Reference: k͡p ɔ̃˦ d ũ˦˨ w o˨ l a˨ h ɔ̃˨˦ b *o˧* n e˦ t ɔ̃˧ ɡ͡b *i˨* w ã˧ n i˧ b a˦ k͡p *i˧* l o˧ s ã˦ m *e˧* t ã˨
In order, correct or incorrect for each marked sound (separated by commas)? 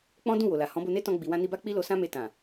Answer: correct, correct, incorrect, correct